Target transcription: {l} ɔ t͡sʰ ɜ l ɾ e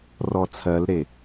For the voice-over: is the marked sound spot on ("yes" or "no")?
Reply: no